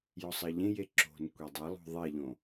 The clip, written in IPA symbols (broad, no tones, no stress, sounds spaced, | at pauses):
j ɔ sˤ ɐ ʎ ẽ j e ǁ o̤ n kʷ e dˤ ɐ lˠ o̤ ðˤ e ʎ õ